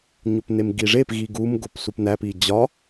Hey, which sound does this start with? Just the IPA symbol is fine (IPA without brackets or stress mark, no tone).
ɲ